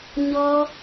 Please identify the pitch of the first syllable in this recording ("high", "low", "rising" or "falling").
high